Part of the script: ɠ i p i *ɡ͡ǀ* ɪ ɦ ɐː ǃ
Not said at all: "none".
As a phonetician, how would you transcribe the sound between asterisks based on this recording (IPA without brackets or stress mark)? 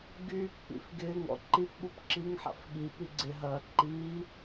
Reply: ɡ͡ǀ